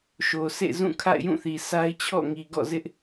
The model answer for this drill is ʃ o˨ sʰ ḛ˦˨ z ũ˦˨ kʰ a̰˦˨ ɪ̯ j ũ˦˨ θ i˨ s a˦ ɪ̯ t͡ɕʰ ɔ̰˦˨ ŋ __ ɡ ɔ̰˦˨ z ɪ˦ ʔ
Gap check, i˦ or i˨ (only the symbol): i˨